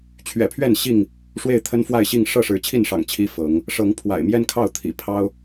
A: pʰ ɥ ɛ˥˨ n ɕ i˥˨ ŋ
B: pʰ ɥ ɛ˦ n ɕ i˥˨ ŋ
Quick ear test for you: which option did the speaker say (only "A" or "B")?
A